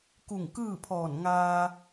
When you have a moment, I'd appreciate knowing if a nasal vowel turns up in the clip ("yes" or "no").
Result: no